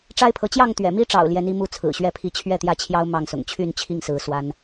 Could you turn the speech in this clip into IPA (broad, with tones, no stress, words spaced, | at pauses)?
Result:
ʈ͡ʂa˦ɪ̯pʰɤ˨˦ t͡ɕjɑ˥˨ŋt̪ɥɛ̰˨˩mi˦ʈ͡ʂɑ̰˨˩ʊ̯ ljɛ˨˦ni˦mu˥˨ t͡sʰɹ̩˨˩ɕɥɛ˥˨pʰi˦ t͡ɕʰɥɛ˥˨t̪jä˥˨t͡ɕʰjɑ˦ʊ̯ mɑ˥˨ŋsʊ̰˨˩ŋ t͡ɕʰy˥˨nt͡ɕʰi˥˨ŋsɹ̩˨˦ swa˦n